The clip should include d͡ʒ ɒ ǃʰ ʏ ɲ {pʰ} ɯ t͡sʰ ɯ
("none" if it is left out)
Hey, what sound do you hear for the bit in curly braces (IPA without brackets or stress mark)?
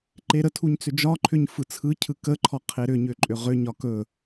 f